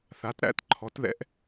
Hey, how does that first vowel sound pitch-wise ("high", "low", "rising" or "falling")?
rising